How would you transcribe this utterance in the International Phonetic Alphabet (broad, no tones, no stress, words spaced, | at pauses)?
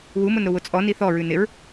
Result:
wumʊnɾʊ wʊt͡sʼɔ niθɔɹʉ nɪɹ